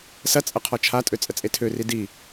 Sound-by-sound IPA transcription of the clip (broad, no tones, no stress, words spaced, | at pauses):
sɐt͡sʼɐ qʰɔt͡ʃʰatʼø t͡sʼət͡sʼetʰøri di